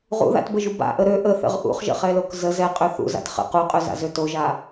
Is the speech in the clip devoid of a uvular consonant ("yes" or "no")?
no